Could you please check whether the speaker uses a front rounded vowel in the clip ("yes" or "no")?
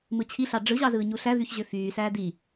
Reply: yes